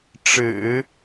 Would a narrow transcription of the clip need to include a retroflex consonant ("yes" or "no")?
yes